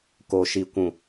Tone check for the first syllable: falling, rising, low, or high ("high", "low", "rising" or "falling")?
low